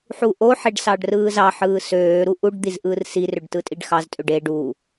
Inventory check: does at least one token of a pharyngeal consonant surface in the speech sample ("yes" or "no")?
yes